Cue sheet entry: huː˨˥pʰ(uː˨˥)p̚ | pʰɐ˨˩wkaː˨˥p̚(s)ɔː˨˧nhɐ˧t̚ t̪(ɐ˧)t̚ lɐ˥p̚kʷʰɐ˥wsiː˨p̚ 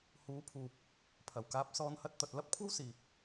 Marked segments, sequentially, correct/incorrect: incorrect, correct, incorrect

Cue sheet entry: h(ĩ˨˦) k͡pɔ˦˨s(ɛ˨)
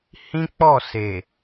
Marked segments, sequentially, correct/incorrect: incorrect, incorrect

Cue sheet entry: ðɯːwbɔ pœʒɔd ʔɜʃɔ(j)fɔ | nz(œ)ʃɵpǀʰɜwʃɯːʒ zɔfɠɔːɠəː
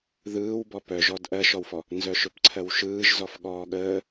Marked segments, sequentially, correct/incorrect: incorrect, correct

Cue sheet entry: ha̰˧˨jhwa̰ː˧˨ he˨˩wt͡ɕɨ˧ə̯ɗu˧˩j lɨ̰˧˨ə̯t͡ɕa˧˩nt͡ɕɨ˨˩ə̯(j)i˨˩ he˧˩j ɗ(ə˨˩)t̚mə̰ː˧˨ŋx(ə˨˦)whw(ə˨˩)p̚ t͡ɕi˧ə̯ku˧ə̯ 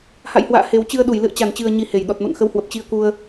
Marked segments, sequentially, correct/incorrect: incorrect, incorrect, correct, correct

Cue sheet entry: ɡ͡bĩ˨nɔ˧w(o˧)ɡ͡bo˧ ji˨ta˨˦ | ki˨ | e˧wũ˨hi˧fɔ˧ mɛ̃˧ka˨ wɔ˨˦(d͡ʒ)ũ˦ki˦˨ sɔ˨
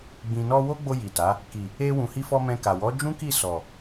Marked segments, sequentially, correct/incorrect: incorrect, correct

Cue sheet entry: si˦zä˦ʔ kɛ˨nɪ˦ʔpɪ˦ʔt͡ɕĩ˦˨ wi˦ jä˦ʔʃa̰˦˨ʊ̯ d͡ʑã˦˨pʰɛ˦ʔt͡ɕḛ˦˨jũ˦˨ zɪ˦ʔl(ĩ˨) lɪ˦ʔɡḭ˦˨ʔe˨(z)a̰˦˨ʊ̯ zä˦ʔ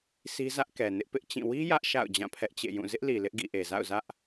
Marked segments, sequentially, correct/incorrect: incorrect, correct

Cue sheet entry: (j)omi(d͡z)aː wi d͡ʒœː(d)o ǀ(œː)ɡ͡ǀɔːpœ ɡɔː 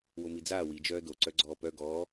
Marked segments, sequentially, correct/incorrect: incorrect, correct, correct, incorrect

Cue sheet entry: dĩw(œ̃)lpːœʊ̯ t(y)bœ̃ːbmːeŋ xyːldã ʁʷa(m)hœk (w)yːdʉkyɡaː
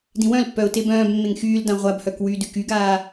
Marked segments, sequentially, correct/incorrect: correct, incorrect, incorrect, correct

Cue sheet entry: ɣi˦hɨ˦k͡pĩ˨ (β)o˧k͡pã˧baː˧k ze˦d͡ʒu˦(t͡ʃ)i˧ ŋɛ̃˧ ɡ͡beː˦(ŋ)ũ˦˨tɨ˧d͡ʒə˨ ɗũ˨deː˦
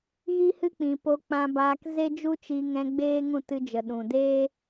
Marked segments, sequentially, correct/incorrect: incorrect, correct, correct

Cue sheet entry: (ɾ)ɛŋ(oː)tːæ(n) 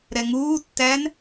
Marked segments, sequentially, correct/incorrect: correct, incorrect, correct

